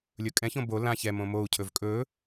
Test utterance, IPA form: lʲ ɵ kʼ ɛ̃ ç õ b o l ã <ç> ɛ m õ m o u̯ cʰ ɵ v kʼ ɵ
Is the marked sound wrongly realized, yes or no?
no